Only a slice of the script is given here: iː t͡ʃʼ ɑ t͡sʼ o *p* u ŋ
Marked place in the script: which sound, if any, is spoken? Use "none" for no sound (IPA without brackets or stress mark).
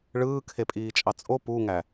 p